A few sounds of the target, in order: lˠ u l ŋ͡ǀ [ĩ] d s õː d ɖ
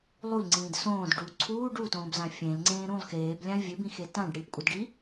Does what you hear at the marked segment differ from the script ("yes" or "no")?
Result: yes